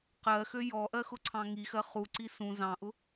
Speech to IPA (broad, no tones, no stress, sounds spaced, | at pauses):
q ɜ x ø j ɔ ʔ ɜ x ʊ ǀʰ ɑ̃ ŋ i x ɜ χ u ǀ i s ũ z ɑ̃ ʔ ʊ